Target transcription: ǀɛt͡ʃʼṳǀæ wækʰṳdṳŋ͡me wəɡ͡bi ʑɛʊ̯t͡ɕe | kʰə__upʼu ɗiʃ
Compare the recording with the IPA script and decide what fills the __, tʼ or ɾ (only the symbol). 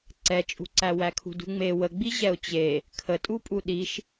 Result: tʼ